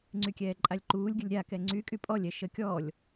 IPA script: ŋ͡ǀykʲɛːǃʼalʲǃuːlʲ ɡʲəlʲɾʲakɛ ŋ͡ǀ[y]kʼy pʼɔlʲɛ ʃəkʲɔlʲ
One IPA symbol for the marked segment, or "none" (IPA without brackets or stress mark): y